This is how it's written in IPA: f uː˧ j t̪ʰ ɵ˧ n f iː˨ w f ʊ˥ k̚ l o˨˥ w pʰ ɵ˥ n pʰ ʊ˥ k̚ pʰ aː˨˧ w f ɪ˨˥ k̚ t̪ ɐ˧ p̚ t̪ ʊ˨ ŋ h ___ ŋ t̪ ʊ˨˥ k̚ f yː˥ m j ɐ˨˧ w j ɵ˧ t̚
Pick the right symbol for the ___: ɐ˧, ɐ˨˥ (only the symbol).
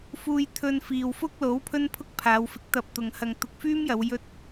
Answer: ɐ˧